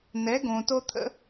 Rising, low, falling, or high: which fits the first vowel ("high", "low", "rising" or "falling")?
rising